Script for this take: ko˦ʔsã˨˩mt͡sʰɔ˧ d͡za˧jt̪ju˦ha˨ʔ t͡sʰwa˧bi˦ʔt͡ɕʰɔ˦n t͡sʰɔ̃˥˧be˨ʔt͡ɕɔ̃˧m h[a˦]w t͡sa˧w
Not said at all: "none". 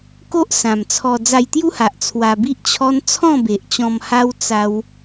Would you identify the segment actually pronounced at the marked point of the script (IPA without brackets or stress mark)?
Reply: a˦